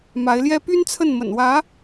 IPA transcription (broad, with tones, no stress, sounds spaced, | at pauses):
m a˧˥ ɪ̯ l j ɛ˥ p y˥ n t͡sʰ ə˥˩ n m ə̰˨˩ n w ä˧˥